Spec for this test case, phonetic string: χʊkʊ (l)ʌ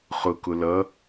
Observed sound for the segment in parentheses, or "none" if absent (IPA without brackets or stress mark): l